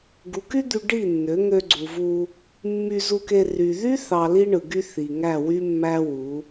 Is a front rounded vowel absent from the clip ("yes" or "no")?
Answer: no